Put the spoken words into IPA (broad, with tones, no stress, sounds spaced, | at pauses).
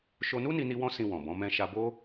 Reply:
ʃ o˧ n u˦ n i˧ n i˧ w ɔ̃˦ s ĩ˧ w ɔ̃˨ b ɔ̃˨˦ m ɛ̃˧ ʃ a˧ b o˦